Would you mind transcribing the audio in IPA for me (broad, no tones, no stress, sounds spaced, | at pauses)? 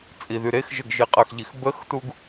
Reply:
t͡sʼ i ð y ɾ e x ʒ ə ɡ ʒ i qʼ ə x ʎ i x b ə x t u ɡ